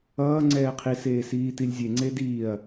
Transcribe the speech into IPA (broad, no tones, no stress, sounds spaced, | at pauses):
ʌː ŋ͡ǀ ɛː qʰ i s eː s iː t i lʲ zʲ e ŋ͡ǀ e d iː ɐ̯